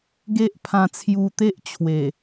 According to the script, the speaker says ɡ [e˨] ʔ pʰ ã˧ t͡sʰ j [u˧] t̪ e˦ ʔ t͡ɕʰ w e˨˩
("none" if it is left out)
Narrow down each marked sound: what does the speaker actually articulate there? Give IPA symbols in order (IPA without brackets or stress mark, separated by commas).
e˦, u˧